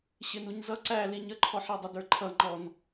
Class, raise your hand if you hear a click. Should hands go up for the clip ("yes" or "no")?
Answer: yes